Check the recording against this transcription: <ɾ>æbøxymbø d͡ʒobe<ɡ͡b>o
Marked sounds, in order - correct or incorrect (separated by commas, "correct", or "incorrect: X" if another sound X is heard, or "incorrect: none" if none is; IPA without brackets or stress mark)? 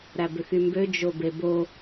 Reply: correct, incorrect: b